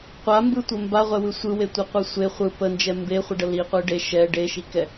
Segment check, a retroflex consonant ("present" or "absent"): present